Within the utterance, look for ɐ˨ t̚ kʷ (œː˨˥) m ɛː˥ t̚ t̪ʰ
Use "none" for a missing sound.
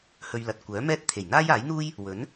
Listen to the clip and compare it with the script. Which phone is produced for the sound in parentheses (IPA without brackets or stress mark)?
œː˨˥